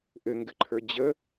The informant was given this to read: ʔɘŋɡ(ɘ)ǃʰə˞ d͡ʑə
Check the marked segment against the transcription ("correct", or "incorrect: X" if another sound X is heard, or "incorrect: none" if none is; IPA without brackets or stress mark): correct